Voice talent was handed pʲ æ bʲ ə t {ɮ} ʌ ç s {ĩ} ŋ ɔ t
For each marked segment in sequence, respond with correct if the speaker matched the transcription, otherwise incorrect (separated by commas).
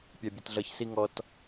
correct, incorrect